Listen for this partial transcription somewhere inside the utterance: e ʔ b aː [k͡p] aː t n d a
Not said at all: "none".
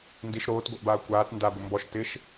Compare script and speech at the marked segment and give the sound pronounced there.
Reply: kʷ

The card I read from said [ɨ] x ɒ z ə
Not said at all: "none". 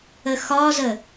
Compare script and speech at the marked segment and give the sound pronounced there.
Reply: ə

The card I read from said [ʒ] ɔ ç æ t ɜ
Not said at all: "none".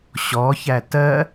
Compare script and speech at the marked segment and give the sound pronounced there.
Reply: ɕ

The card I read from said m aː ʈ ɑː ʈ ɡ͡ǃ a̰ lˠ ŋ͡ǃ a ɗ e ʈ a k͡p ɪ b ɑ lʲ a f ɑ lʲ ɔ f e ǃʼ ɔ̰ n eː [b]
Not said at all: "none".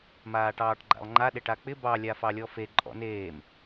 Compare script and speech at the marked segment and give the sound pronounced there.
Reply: m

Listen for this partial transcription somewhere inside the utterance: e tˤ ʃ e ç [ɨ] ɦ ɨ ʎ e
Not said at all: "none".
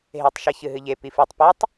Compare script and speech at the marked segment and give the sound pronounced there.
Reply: ɨ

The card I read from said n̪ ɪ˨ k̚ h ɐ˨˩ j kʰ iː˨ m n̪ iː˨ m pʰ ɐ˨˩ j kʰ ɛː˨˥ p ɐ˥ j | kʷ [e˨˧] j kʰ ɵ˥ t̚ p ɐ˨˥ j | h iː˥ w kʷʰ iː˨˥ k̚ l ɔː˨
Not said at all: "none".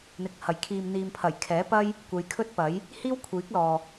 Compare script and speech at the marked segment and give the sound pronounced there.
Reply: e˨˧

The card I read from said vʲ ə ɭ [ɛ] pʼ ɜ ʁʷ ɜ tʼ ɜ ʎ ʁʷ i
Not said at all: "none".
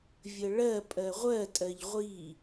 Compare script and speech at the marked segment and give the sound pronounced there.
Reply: ɜ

